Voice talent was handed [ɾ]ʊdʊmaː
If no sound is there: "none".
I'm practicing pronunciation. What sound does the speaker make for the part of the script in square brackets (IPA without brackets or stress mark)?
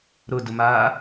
ɾ